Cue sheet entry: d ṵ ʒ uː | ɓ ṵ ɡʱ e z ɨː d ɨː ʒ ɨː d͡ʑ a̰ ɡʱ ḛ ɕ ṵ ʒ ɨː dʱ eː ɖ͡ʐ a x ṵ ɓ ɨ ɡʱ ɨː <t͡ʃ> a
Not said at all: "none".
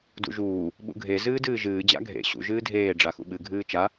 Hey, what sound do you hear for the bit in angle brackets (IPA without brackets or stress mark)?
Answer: t͡ʃ